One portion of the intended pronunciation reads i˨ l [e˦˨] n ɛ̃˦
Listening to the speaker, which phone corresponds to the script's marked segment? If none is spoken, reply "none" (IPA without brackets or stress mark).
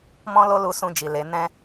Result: e˨˦